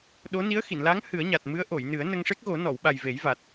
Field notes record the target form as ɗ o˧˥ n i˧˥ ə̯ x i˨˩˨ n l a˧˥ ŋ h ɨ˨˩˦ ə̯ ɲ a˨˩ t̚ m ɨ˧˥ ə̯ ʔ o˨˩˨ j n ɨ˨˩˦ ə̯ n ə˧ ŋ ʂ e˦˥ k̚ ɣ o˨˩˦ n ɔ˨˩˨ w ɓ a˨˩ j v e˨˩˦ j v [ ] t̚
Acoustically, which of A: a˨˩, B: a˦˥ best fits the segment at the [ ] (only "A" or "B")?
A